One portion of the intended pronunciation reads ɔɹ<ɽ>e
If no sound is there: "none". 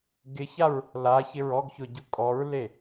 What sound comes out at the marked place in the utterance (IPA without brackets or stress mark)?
l